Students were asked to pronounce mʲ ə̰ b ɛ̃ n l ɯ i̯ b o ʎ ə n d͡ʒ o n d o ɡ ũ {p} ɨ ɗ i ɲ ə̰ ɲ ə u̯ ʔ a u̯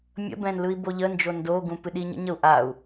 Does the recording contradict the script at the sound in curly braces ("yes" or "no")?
no